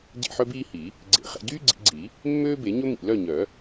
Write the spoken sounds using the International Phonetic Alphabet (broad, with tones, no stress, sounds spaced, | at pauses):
ɟ ḛ˥˨ ħ œ˥ b iː˥ h i˨˩˦ | ɡ͡ǀ ḛ˧˩ χ ɛ̰˥˨ ɟ yː˥ ɡ͡ǀ ḭ˨˩˦ ɡ͡ǀ i˨˩˦ | mː øː˥ b e˨˩˦ ɲ ɵ˥ m ḭ˧˩ l œ˥˨ ɲ œ˨˩˦